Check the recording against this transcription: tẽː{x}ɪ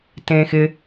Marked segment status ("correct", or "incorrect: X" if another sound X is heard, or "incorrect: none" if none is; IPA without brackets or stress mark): correct